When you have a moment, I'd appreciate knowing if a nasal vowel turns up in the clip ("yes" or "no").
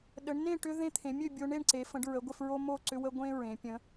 yes